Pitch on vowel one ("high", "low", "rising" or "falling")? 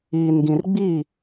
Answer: low